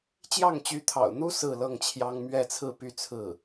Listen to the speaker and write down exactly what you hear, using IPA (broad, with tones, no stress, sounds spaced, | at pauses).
t͡ɕ j ɑ˥˩ ŋ t͡ɕ y˧˥ t̪ʰ ɑ̰˨˩ ʊ̯ n̪ u˥ s ɹ̩˥˧ l ɤ˥˩ ŋ t͡ɕʰ j ɑ˥ ŋ m ɥ ɛ˥˧ t͡sʰ ɹ̩˥˧ p y˥˧ t͡sʰ ɹ̩˥˩